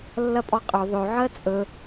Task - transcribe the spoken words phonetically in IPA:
lː ɐ pʼ ɔ qʼ ɵ ðˤ ɵ ʕ ɜ t͡sʼ ɵ

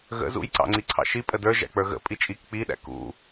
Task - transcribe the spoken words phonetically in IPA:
ɣ ə̰ z ṵ j ǀ ɑ̰ ŋ͡ǀ i ǀʰ ɑ̰ ʃ i pʼ ə d ə˞ ʒ æ̰ k͡p ə˞ ɣ ə̰ pʼ i t͡ʃʼ i k k͡p i ɗ æ̰ k ṵ

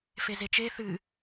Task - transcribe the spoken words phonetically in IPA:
f e z e t͡ʃ e θ ɨ

